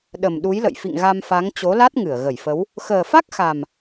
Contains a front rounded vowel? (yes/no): no